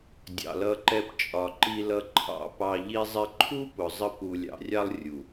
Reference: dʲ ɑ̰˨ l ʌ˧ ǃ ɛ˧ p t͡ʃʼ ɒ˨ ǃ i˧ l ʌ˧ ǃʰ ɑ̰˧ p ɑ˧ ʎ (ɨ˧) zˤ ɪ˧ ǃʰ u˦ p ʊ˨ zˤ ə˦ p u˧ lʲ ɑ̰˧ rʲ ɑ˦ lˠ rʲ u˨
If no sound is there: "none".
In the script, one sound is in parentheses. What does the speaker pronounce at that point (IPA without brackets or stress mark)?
i˧